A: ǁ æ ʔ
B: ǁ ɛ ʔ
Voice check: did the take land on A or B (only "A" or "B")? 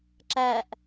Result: A